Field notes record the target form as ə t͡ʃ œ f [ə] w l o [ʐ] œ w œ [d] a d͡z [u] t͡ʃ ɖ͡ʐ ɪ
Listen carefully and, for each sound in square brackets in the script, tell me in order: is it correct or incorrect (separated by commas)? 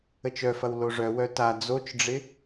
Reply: incorrect, correct, incorrect, incorrect